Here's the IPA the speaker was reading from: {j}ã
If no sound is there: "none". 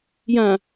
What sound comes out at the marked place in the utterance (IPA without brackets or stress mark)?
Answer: j